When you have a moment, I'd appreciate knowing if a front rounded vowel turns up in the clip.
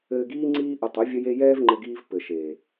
no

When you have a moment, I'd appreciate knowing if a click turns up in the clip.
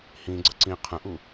yes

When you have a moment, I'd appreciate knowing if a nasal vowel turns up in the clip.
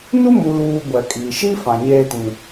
yes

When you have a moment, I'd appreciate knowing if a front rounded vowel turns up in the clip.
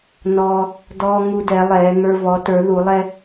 no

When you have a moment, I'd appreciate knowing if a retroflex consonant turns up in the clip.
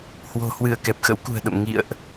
no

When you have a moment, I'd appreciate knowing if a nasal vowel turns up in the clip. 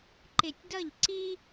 no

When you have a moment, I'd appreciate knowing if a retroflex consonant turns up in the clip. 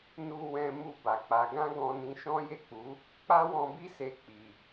no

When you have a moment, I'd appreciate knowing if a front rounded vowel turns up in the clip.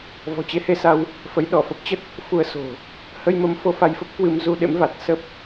no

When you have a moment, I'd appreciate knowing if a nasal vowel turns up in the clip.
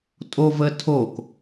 no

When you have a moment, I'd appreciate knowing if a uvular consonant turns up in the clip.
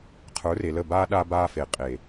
yes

